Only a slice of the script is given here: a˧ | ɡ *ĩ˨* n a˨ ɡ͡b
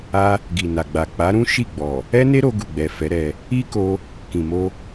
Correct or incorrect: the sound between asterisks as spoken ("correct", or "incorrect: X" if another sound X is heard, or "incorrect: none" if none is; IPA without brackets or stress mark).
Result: incorrect: i˨